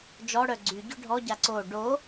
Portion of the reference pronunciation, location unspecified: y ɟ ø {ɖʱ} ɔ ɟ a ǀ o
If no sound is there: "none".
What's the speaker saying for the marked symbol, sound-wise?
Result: ɖʱ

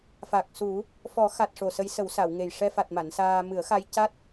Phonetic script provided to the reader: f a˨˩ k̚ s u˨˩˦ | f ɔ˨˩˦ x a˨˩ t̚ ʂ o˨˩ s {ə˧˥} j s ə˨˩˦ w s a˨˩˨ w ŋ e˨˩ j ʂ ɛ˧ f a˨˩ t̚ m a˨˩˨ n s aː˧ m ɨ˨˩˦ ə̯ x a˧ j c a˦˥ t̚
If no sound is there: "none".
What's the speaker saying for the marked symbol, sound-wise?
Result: ə˧˥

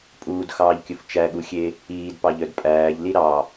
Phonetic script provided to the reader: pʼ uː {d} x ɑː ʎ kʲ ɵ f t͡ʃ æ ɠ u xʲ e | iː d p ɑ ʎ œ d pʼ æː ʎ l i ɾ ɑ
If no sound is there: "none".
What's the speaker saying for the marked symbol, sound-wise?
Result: d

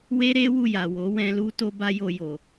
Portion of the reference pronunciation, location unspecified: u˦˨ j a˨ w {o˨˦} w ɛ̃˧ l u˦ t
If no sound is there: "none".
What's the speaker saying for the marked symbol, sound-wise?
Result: o˨˦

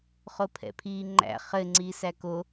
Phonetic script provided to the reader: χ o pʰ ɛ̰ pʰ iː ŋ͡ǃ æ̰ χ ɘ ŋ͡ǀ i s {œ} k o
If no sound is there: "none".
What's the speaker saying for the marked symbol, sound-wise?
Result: æ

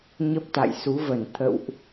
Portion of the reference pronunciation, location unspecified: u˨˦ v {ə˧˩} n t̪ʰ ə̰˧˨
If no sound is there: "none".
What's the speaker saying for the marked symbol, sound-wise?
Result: ə˧˩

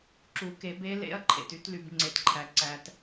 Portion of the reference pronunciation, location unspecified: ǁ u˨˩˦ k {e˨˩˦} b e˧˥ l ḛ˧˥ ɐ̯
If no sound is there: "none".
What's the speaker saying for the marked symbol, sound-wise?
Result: e˨˩˦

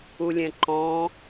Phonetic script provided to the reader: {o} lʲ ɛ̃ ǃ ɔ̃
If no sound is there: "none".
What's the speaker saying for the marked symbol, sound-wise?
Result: u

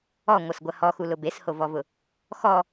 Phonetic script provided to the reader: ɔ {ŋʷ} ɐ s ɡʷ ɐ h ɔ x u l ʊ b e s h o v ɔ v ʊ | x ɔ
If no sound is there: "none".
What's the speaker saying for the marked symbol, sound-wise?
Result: ŋʷ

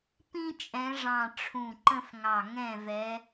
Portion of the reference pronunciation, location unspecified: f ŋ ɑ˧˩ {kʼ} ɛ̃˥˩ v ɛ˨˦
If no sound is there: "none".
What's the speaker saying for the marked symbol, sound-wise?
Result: ŋ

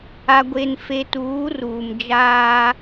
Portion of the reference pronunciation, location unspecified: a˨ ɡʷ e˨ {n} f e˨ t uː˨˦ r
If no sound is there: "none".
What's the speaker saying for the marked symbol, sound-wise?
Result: n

